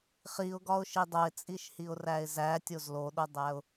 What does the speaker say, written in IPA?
χiʊ̯ɡɒʊ̯ʃi dˤoɪ̯t͡sʼiʃhiʊ̯ræɪ̯ zætʲoz loɗodˤæʊ̯

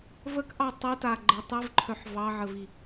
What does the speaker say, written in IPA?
vəkʔɑ tˤita ɡ͡ǃə tˤivǃʰœħ vɑʕəvi

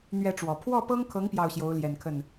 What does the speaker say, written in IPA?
n̪ɥɛ˥˩ʈ͡ʂwɔ˨˩ pʰwɔ˥˩pɤ˥ŋkʰɤ˧˥ŋ pjɑ˥˩ʊ̯ɕjo˧˥ʊ̯ljɛ˨˩nkʰə˥˩n

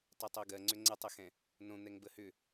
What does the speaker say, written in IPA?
tˤetˤoɡɜŋ͡ǀʏ ŋ͡ǀətˤəxɛ̃ | nõn̪ɛŋbə hʏ

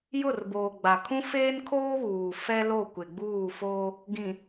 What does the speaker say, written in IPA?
jʊ˦˨rboː˨ ɡ͡ba˨kʰũ˦ feː˦nkʰoː˦βuː˨ fɛ˦lo˦˨ kʷɪ˨ɡ͡buː˦˨foː˦ | ɡĩ˨

